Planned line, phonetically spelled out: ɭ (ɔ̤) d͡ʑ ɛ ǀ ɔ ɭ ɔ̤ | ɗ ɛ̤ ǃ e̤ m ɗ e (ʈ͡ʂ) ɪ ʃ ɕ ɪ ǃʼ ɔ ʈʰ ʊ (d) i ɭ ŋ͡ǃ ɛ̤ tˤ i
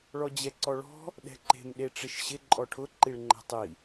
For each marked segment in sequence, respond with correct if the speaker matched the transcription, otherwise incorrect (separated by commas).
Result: incorrect, correct, incorrect